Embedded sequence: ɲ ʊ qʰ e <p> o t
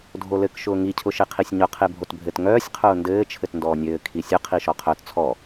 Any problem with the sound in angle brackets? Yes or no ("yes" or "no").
yes